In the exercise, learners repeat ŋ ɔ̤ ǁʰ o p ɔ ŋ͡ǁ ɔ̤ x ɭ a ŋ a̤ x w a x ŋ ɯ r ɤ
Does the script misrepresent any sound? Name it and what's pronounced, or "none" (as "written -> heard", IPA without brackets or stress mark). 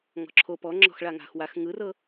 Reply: none